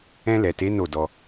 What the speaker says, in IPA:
ɛ̃˧lɛ˨te˨˦ no˦˨dɔ˧

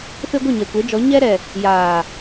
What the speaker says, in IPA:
fe˦ɡʷɪ˦˨ ɲɛ˨kʷe˨˦d͡ʒɔ˨˦ ɲɛ˦ɾɛ˨ | jaː˨

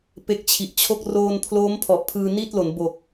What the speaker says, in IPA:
pe˦˥k̚t͡ɕʰi˨˩ʔt͡ɕʰo˥˩k̚ roː˧npʰloː˦˥m pʰɔ˨˩ʔpʰɯː˧ni˥˩t̚lo˩˦n bo˨˩k̚

